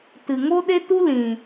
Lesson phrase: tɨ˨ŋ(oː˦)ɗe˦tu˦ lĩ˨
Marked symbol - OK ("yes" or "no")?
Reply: no